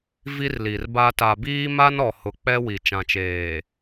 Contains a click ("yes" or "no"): no